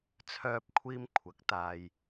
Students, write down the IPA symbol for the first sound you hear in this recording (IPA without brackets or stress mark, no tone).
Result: t͡sʰ